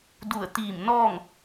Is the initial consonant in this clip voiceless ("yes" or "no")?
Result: no